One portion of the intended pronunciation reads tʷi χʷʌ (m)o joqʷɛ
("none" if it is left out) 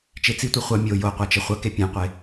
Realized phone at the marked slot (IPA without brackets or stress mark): mʲ